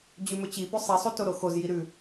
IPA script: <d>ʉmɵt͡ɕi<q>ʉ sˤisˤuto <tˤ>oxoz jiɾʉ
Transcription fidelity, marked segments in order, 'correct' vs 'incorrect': incorrect, incorrect, incorrect

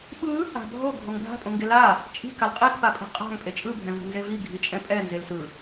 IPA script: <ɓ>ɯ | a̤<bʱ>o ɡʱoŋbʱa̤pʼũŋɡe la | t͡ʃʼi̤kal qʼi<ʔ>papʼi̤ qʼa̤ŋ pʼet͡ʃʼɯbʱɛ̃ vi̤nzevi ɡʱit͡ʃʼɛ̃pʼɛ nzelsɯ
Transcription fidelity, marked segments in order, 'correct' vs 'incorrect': correct, correct, incorrect

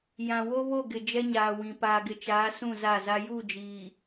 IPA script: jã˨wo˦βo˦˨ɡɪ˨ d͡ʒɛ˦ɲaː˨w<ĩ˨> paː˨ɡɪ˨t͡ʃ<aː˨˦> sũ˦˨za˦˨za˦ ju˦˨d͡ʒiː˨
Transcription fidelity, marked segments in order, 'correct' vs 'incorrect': correct, correct

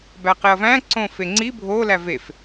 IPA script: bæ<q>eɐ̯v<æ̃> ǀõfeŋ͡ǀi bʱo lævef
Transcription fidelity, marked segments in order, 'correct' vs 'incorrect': correct, correct

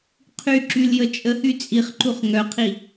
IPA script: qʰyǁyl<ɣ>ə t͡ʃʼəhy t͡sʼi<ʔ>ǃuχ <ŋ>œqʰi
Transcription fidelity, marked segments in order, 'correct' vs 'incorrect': incorrect, incorrect, correct

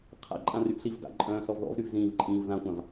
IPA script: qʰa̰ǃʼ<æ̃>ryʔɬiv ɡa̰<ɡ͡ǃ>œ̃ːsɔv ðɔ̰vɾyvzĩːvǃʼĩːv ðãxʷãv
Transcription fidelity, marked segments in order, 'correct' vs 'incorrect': incorrect, incorrect

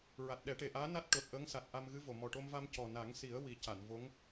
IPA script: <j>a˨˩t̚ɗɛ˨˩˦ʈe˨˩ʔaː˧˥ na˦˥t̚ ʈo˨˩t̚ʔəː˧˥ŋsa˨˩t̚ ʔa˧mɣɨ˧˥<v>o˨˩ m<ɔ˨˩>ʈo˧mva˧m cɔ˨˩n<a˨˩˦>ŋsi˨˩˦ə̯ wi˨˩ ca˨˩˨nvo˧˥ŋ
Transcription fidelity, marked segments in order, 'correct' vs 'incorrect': incorrect, correct, correct, correct

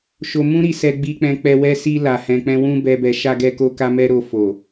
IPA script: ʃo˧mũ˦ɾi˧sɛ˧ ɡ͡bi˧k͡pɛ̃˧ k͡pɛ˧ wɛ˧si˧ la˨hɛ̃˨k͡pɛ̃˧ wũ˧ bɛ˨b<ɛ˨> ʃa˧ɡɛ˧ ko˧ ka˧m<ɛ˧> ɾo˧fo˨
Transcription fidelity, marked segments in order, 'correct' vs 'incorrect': correct, correct

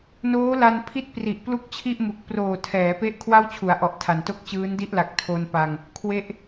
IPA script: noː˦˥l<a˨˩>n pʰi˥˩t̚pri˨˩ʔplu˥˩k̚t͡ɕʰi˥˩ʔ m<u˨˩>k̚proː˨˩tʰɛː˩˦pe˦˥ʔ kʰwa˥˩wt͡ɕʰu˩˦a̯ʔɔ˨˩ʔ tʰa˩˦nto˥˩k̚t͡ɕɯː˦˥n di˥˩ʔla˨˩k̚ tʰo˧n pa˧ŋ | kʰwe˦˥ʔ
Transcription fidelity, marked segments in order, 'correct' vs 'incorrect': incorrect, correct

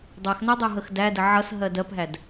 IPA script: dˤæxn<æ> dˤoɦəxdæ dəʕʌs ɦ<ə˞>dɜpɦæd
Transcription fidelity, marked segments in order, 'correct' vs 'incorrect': correct, incorrect

